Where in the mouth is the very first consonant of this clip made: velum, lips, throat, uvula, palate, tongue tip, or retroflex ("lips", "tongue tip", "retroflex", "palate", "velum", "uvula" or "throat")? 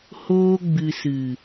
throat